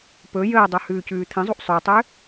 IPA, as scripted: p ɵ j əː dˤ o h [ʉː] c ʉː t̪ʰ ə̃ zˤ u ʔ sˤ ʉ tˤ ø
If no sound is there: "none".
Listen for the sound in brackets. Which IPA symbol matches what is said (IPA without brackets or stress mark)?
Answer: ʉː